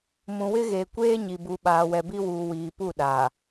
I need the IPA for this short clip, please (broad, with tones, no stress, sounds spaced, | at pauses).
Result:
m ũ˨ w ɪ˦ ɣ eː˨ kʷ eː˦ ɲ i˨ b u˨ ɓ aː˨ w ɛ˨ b i˦ w uː˨ w iː˨ p u˦˨ ɗ aː˨